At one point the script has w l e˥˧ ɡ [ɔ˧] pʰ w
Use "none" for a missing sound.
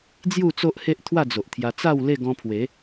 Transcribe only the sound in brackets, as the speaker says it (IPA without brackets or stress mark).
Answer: ɔ̃˧